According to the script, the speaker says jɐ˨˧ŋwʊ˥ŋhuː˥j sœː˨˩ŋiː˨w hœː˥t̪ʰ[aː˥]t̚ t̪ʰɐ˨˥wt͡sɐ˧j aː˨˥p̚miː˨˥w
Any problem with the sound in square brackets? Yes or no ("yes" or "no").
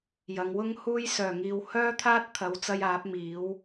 no